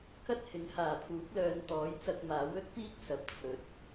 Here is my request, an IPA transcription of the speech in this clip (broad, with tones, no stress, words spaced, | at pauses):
kɐ˥t̚ hɪ˨˥ŋhaː˨˩pʰuː˨˥k̚lœː˨˧n t̪ɔː˨˥jt͡sɐ˧k̚maː˨˥w ɵ˥t̚piː˥k̚ sɐ˨p̚t͡sʰɵ˨˥t̚